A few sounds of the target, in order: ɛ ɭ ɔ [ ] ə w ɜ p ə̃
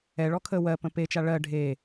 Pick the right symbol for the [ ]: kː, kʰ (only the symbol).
kʰ